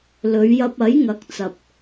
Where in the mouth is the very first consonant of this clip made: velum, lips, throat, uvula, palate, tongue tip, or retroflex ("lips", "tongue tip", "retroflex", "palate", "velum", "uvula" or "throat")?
tongue tip